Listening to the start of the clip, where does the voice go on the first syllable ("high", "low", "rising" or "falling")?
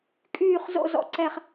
low